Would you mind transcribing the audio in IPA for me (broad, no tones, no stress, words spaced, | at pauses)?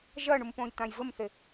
ʒɐɳum põjt̪ãjvɘmθe